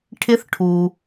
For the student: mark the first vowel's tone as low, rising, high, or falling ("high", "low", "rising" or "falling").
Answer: rising